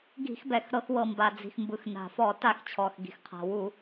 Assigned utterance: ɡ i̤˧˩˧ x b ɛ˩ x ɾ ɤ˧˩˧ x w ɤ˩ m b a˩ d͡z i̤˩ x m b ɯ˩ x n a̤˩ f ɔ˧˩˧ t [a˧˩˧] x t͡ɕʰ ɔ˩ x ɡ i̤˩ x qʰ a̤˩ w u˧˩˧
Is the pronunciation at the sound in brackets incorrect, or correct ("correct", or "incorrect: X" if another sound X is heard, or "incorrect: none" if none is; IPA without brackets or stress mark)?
correct